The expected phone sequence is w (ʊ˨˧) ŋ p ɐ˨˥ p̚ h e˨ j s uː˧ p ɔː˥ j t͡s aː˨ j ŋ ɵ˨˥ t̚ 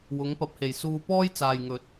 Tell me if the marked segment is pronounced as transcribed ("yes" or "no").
yes